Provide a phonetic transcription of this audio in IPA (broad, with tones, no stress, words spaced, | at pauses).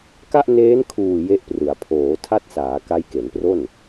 ka˥˩ʔneː˦˥nkʰuː˨˩ je˦˥ʔprɯ˩˦a̯ pʰoː˩˦tʰa˦˥t̚saː˩˦ ka˦˥jke˩˦npro˥˩n